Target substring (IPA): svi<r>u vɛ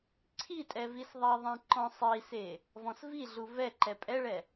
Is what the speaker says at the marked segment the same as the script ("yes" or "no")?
no